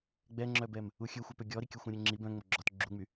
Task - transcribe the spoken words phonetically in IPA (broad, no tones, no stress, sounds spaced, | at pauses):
ɡ͡b ɛ ŋ͡ǁ œ b ɛ m | u xʲ ø xʷ œ p ø ɡʲ ɔ ɾ i kʲ ɵ xʷ œ̃ ɾʲ ø ŋ͡ǁ i b œ̃ ŋ͡m o ɡ͡ǁ ɔ t ɡ͡ǁ u ŋ͡m y